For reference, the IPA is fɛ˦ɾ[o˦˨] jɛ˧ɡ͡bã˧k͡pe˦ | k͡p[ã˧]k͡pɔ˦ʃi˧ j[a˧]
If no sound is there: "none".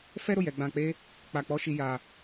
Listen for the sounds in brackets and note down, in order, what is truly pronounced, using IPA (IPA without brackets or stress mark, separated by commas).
o˦˨, a˧, a˧